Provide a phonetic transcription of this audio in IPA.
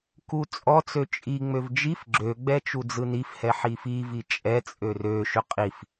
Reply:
kut͡sʼɔt͡sø t͡ʃʼiŋ͡møv d͡ʒif ɡ͡ǁøɡ͡bɛ t͡ʃud͡zɯnifhɛ ħifivi t͡ʃʼɛt͡sʼør øʃʏ qʼif

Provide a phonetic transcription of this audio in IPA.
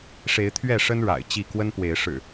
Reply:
ʂe˨˦ɪ̯t̪ʰɥɛ˥˨ʂə˦n ɻa̰˨˩ɪ̯t͡ɕi˥˨ kwə˦npwe˨˦ɪ̯ ʂɻ̩˨˩

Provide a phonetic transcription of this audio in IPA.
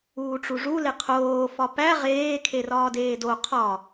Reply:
uːʈ͡ʂuʐu leqʰoː fɒpæ ʁeː kʰerɒːdeːdo qʰɒ

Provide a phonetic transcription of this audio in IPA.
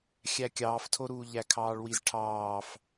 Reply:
xʲækʲɑːftʰoɾuː ʎækʰɑːɭwizʈʰɑːf

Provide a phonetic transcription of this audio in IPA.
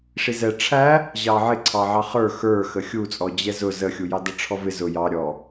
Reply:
ʂizɛ ʈ͡ʂʰæ | ʑɑʕɪ ǀʰɑʕɑχə˞ xə˞ xəxʲut͡sʼɔ d͡ʑɛzʊ zəxʲujɑdʌ ʈ͡ʂʰɔvɪ zʊ jɑ ɾʲɔ

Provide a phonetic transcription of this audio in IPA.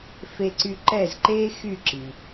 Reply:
fe˧ǀy˧ǃɛ˥˩zǃeː˥ xy˥˩ǁi˩

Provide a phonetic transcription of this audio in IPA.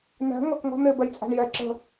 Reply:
næ̤ ŋʌk ŋɔ̤n̪ɪ bɛjt͡sʼæ̤ɳjɛ ǁə̤

